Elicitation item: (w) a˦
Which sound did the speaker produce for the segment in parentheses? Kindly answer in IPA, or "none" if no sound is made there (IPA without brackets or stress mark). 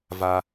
v